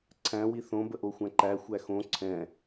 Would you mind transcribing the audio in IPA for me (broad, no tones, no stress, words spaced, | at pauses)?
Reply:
ǀʰæ̃ wiθõ bəʔoxʷæ̃ǃæ xʷæxõ ǀʰɛ̃